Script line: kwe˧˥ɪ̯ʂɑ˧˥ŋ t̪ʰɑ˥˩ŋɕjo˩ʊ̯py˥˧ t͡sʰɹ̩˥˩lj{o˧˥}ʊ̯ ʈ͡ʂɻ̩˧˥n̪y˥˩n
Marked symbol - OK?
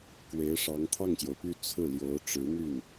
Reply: yes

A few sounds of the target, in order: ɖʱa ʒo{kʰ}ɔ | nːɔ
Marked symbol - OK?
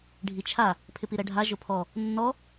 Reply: no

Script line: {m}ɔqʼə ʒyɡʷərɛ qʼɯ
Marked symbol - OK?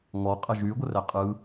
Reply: no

